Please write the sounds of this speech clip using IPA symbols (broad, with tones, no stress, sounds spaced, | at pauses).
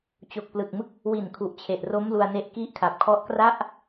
t͡ɕ o˨˩ k̚ p l ɯ˨˩ k̚ m ɯ˦˥ k̚ | w i˨˩ n kʰ u˨˩ ʔ t͡ɕʰ e˨˩ ʔ r o˦˥ m l u˧ a̯ n e˦˥ ʔ k i˦˥ ʔ kʰ a˨˩ p̚ kʰ ɔ˦˥ ʔ k r a˥˩ ʔ